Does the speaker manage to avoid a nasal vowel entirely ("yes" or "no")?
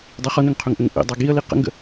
yes